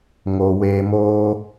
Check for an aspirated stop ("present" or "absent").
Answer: absent